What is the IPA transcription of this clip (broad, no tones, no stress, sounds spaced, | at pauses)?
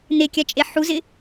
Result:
n̪ e kʲ a t͡ʃʼ e ħ u z ɪ